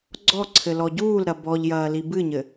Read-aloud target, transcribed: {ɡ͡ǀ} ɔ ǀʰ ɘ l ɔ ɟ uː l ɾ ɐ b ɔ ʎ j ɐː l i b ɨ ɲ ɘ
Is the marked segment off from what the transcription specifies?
no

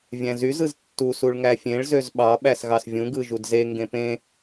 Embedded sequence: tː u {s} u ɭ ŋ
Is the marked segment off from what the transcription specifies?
no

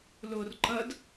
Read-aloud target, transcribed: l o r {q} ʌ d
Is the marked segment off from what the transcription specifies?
yes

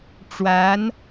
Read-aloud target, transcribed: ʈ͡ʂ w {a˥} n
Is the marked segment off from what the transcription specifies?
yes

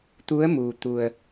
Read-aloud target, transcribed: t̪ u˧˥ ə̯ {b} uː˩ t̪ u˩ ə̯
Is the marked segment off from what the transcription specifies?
yes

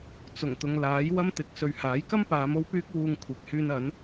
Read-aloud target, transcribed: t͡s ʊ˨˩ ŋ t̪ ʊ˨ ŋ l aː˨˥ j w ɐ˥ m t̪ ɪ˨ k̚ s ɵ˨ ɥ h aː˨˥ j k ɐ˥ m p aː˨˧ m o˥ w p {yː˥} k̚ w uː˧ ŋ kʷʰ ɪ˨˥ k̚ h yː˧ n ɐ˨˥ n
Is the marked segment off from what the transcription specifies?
no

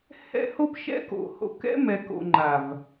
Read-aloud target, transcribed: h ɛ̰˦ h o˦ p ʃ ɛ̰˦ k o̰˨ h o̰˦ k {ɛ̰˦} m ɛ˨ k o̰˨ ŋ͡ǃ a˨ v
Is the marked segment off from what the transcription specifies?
no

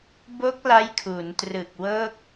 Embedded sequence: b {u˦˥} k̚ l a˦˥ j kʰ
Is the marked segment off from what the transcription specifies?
yes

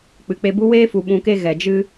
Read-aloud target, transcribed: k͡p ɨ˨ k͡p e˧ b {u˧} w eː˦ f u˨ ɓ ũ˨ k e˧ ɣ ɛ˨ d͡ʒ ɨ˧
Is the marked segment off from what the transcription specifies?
yes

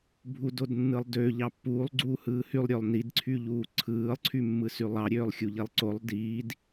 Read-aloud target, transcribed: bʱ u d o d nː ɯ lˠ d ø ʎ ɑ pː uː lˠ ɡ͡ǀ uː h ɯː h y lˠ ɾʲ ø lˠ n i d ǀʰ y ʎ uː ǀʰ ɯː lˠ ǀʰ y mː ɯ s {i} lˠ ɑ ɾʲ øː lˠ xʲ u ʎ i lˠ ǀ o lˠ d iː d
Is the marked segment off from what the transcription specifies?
yes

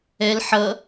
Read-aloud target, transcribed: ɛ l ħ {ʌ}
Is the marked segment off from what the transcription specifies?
no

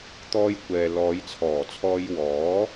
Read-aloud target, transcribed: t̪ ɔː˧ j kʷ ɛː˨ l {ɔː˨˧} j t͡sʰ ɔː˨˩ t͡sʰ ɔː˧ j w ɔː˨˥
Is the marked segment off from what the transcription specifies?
no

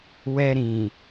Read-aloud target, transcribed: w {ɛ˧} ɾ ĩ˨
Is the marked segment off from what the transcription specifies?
no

